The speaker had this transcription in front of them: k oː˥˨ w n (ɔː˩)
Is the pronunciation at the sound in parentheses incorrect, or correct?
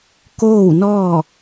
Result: incorrect: ɔː˥˨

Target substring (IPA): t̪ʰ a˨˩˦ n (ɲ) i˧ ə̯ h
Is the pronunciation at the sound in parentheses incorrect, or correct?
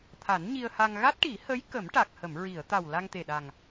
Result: correct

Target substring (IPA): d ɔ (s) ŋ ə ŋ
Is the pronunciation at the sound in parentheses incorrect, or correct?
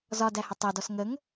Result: correct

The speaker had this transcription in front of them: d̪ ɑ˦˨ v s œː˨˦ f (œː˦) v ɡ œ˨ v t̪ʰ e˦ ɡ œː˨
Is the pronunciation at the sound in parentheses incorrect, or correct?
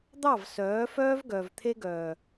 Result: correct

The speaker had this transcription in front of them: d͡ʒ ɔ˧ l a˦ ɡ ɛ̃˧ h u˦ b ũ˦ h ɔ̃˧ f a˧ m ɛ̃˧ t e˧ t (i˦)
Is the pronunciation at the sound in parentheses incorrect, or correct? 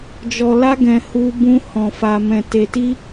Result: correct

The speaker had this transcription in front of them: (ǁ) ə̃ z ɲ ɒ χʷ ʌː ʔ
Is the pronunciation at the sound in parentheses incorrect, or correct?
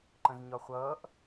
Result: incorrect: ǃ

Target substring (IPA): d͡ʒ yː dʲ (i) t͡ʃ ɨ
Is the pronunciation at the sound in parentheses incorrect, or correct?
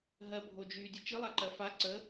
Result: incorrect: ɨ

